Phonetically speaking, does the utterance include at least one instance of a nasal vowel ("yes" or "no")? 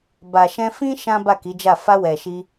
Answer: yes